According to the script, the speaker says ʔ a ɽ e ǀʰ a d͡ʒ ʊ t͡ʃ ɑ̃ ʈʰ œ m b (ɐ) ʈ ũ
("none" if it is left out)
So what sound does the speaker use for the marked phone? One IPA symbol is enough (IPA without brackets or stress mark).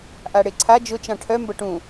ɐ